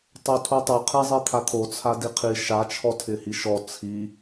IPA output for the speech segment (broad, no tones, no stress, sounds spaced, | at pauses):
tˤ o tʰ u tˤ o qʰ i zˤ i t̪ʰ a t̪ʰ o t͡sʰ a d i qʰ i ʃ a t͡ʃʰ ɔ tʰ ɪ h i ʃ ɔ t͡sʰ i